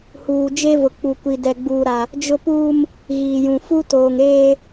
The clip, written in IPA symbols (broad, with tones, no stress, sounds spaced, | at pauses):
h uː˨ d͡ʒ e˦ v ʊ˨ k͡p u˨ kʷ i˨ d ɛ˨ ɡ͡b uː˨ ɾ a˨ | d͡ʒ ʊ˦ p uː˦ m | ɣ iː˨ j ũ˨ f u˦ t oː˨ ŋ eː˦